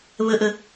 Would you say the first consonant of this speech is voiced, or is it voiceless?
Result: voiced